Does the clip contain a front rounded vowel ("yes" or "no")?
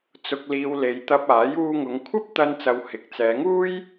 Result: no